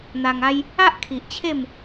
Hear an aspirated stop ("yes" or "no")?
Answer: yes